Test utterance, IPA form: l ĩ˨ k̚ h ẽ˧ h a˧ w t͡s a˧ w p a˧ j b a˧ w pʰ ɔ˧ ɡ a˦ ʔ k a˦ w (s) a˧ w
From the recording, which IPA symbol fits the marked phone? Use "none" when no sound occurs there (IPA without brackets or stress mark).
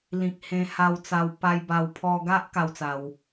t͡s